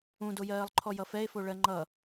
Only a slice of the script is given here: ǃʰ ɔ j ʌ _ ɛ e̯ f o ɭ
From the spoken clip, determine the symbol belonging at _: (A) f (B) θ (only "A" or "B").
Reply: A